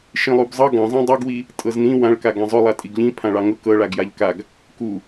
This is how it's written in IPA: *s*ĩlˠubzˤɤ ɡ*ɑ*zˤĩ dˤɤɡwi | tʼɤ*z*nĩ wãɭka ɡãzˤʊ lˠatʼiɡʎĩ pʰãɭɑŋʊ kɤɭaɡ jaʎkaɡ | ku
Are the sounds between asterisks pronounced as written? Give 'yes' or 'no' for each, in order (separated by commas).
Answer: no, no, yes